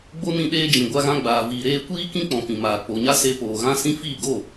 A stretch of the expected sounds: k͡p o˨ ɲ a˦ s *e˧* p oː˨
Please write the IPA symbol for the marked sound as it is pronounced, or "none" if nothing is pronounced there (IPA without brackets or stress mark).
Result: e˧